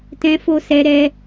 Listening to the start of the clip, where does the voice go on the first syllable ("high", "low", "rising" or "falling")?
high